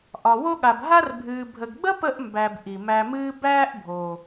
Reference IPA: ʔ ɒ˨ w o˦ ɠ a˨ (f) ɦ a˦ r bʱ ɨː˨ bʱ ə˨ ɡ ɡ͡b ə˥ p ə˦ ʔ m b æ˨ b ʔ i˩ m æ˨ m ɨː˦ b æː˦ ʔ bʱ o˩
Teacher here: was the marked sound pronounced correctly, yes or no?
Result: no